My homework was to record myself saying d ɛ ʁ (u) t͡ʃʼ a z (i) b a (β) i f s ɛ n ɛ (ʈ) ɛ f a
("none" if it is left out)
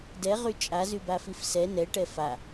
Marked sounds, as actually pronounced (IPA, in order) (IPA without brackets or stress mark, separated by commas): y, y, f, ʈ